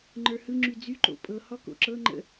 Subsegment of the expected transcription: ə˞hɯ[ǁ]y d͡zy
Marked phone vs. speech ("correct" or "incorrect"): incorrect